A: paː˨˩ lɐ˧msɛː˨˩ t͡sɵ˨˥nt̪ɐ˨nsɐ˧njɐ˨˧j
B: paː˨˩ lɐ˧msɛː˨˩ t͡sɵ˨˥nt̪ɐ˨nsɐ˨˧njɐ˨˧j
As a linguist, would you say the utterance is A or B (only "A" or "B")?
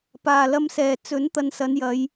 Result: B